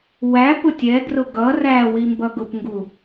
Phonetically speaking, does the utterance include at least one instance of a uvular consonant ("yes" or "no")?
no